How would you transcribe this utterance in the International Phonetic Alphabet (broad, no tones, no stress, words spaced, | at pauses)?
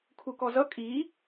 kʰukɔzʌ kʼi